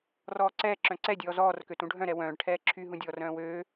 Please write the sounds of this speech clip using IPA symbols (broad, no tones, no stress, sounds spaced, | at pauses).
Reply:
r ɔː ǀ ɛː ǁ œ̃ ǀ ɛ dʲ ɔː z ɔː r k ø t ũ ɖʱ œ̃ ɾ ɛ w œ̃ː ɖ ʈʰ ɛː ǁʰ y ɦ ũ dʲ ɔː r œ̃ː w øː